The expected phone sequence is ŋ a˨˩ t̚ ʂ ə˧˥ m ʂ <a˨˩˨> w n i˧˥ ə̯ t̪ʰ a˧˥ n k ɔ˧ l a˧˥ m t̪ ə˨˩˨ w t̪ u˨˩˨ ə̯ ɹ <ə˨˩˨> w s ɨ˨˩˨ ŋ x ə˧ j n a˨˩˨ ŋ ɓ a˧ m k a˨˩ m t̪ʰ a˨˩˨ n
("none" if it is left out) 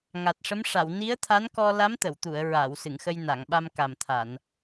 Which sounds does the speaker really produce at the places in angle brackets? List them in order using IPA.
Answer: a˨˩˨, a˨˩˨

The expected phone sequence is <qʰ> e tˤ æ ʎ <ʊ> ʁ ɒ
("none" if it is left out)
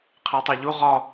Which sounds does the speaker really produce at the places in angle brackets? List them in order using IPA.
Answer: qʰ, u

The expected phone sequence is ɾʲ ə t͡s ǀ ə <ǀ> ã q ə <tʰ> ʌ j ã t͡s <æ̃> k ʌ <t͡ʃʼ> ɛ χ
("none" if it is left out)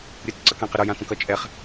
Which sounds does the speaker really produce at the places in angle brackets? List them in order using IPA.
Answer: k, ɾ, ə̃, t͡ʃʼ

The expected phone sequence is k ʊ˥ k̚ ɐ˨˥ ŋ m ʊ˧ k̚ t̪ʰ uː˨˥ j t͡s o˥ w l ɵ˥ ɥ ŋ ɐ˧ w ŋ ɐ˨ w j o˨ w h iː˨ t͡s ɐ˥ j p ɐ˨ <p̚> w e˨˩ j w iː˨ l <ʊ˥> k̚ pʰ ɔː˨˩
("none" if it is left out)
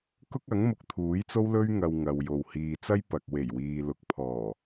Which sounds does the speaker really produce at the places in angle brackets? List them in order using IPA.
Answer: k̚, ʊ˨

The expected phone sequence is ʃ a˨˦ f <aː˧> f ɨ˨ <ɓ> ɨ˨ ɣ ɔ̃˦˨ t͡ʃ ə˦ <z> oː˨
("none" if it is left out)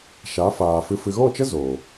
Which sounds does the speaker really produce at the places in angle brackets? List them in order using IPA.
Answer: aː˨, f, z

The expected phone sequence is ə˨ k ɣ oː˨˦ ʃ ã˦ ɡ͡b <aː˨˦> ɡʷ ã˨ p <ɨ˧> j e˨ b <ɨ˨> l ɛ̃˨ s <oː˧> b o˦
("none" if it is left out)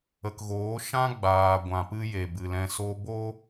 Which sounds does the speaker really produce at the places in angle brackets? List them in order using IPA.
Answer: aː˨, ɨ˧, ɨ˨, o˧

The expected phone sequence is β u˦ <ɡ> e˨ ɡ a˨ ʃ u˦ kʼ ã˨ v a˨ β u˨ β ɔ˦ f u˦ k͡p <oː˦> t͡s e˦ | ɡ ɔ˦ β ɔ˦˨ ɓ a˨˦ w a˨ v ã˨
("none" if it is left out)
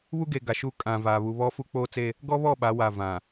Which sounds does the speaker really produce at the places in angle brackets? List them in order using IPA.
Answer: ɡ, oː˦

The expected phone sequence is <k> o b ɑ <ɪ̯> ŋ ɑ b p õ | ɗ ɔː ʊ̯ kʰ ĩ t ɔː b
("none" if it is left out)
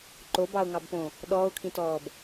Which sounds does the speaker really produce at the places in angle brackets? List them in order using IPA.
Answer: ǃ, ʊ̯

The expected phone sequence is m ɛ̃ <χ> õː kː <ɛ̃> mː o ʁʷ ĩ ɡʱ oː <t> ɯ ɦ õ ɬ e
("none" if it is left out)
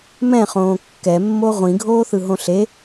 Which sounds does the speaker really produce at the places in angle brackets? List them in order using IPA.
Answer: χ, ɛ, θ

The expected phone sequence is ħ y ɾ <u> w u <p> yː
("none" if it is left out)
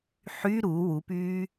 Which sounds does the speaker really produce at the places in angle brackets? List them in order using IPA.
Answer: u, p

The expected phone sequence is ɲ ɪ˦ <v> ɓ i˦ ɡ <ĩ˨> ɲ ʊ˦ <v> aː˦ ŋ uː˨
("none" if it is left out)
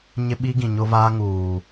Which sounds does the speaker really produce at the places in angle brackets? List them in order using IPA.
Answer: none, ĩ˨, v

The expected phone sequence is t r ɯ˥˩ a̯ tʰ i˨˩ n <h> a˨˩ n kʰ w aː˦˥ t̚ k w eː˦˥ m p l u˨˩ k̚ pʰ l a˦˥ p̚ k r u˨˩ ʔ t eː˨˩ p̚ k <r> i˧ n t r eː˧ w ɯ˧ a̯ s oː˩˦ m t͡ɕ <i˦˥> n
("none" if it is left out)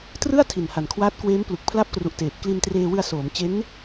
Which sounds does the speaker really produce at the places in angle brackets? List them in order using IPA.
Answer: h, l, e˦˥

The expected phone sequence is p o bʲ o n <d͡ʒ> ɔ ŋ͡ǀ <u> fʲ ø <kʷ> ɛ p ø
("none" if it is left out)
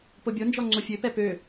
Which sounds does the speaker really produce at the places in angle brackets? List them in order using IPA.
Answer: d͡ʒ, o, p

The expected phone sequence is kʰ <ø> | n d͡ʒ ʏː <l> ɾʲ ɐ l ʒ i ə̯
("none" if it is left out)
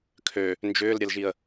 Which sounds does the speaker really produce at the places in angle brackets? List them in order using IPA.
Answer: ø, l

